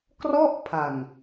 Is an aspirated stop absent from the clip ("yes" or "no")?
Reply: no